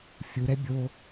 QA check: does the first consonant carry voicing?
no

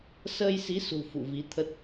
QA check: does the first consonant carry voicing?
no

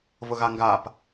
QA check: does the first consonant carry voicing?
yes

